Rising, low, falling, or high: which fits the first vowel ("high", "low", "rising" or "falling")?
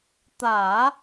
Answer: low